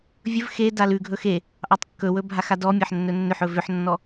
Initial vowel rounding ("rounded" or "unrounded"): rounded